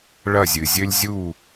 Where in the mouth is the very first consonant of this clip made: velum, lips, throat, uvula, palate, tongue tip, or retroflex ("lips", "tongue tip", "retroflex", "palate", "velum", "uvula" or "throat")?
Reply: retroflex